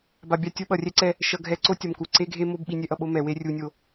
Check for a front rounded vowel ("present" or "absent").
absent